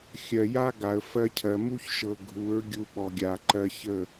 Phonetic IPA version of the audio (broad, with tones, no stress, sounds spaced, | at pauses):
xʲ ɜ˨ j a˦ ɡ a˨ ə̯ f ɜ˧ cʰ ɜ˨ m u˦ ç ʃ ɤ˨ ɡʱ u˨˦ ɹ ɡʲ u˧ ɓ ɔ˨ ɡʲ a˨ ǃ ɜ˧ ç ə˦˨